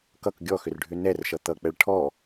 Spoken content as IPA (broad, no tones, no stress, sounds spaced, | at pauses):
k ʌ k ɡʲ ɔ x ʏ r ɖʱ ʏ n ɛ r ʃ ʌ t̪ ʌ k͡p ɛ ɭ ʈʰ ɔ